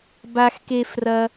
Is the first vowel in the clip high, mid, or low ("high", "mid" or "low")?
low